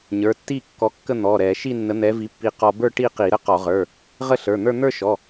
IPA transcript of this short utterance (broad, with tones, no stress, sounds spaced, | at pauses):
ɲ ə˞˩˧˩ tː i˥˧ kː ɔ˨˥ kː ə˥˧ n̪ ɔ˩˧˩ ɾ ɛ˧˩˧ ʃ i˥˧ nː ə˨˥ n̪ ɛ˨˥ v i˨˥ pː i˧ q ɔ˧ b ə˞˥˧ ʈ i˥˧ q i˧˩˧ ɾ ə˥˧ q ɔ˧˩˧ ʁ ə˞˩˧˩ | ʁ ə˥˧ ɬ ə˞˩˧˩ n̪ ə˞˥˧ n̪ ə˞˥˧ ʃ ɔ˩˧˩